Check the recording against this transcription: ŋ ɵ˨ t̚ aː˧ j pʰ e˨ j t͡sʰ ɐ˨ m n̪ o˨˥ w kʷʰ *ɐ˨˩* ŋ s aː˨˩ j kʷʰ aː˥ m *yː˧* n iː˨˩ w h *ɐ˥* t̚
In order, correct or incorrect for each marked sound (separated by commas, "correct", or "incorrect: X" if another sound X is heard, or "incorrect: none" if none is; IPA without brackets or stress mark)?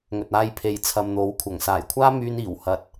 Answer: correct, correct, incorrect: ɐ˨